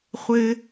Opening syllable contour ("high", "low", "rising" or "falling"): low